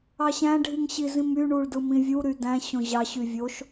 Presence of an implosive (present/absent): absent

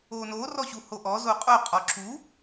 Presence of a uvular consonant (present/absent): present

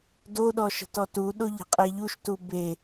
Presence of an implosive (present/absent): present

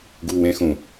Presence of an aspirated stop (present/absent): absent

